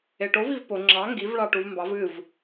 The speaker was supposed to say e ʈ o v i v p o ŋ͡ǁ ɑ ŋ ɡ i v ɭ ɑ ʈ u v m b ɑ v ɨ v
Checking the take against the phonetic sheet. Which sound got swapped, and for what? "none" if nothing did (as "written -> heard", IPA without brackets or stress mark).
none